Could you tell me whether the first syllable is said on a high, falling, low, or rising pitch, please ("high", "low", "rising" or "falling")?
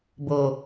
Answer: low